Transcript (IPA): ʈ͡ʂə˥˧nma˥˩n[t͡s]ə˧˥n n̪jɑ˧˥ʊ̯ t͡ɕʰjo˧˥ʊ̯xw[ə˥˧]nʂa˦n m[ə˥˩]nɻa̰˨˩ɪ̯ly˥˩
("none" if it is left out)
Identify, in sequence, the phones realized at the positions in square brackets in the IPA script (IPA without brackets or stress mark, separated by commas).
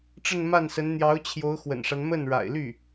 s, ə̰˨˩, ə˥˩